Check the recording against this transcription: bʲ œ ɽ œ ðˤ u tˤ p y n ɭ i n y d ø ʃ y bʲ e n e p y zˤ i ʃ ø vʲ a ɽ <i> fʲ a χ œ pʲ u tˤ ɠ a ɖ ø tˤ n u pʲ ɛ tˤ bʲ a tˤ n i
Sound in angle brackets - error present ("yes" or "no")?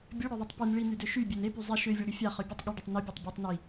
no